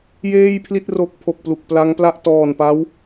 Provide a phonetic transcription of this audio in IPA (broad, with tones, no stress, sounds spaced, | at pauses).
j eː˥˩ j pʰ l i˥˩ t̚ r o˦˥ k̚ pʰ o˨˩ k̚ p l u˨˩ k̚ p l a˦˥ ŋ p l a˥˩ ʔ t ɔː˨˩ n p a˦˥ w